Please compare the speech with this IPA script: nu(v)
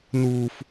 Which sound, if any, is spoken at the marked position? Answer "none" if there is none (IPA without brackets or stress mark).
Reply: f